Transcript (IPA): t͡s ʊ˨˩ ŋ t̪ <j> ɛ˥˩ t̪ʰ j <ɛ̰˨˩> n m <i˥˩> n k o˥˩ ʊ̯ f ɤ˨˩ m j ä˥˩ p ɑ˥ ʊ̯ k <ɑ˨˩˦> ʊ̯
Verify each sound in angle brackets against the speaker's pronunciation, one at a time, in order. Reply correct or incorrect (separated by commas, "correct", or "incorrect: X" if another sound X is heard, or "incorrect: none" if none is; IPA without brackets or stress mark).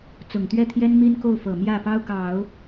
incorrect: ɥ, incorrect: ɛ˥, incorrect: i˥, correct